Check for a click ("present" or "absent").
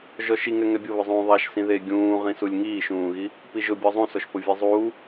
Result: absent